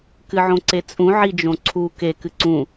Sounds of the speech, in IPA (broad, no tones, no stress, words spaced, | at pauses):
kɨʕõǀet͡sʼũ ʕid͡ʒõǀʰu ke kɨǀũ